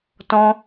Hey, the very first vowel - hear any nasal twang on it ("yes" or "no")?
yes